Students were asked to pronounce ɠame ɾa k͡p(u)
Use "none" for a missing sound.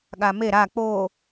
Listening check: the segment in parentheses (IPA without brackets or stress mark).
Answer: o